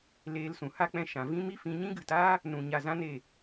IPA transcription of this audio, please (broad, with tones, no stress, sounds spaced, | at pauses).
l eː˧ l s ũ˨ h a˦ k͡p ɛ̃˧ ʃ ã˨ v ĩ˦ m i˦ f ĩ˧ ɲ ĩ˦ ɡ ɨ˨ t aː˦ | n ũ˨ ɲ a˧ z ã˦ n e˦˨